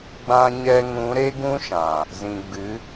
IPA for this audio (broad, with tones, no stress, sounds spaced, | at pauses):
ɡ͡b ã˧ ɲ ɛ˧ ŋ ũ˨˦ ɾ e˦ ɡ ũ˦ ʃ ã˨ | z ĩ˨ ɡ͡b ɨ˨˦